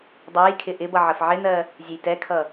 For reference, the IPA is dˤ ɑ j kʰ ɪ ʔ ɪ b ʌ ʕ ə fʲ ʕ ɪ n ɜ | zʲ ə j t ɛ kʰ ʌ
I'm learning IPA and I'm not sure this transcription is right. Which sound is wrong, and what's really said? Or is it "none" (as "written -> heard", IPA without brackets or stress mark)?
fʲ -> f